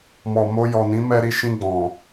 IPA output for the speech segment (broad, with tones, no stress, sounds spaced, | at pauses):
m ɔ˨ m o˧ j ɔ˨ n ĩ˨˦ m ɛ˧ ɾ i˧ ʃ ĩ˧ ɡ͡b ɔ̃˨